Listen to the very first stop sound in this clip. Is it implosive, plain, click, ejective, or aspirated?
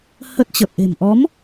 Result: plain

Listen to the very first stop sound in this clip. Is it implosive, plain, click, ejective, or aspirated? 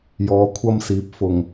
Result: aspirated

